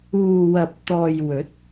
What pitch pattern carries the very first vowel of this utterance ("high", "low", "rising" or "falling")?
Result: low